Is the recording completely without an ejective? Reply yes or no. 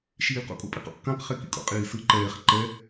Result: no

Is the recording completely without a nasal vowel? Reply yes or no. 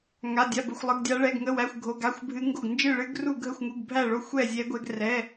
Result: yes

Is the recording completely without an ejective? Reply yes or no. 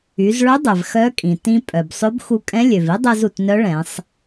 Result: no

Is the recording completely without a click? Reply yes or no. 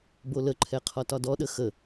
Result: no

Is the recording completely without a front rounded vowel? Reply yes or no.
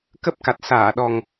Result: yes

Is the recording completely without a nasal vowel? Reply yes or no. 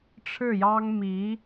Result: yes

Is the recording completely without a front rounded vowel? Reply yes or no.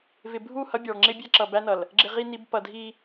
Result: yes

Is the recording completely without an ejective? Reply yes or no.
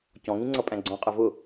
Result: no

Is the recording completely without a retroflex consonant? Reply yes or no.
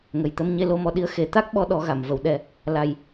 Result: yes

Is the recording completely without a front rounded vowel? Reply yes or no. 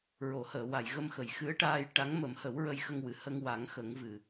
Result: yes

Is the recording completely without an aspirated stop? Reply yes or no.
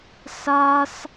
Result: yes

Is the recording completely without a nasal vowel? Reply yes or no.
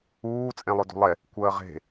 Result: no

